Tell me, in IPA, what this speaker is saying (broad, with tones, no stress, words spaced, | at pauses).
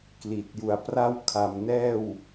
kli˨˩t̚ju˨˩a̯pra˥˩w kʰa˨˩mnɛː˥˩w